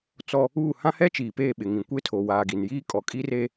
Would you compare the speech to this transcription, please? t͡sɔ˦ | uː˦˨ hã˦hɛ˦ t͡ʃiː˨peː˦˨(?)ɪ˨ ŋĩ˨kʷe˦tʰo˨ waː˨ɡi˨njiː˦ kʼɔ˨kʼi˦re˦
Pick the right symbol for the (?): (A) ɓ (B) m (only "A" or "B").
A